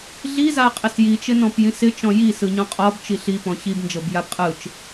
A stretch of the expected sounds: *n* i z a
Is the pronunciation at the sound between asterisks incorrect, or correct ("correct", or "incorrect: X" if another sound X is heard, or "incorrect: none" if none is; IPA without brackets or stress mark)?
incorrect: ɮ